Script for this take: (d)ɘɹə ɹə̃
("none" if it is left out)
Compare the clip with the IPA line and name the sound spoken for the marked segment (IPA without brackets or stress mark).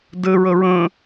d